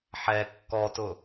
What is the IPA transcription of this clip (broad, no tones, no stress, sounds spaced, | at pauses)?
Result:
ħ ɛ kː ɔ t ʊ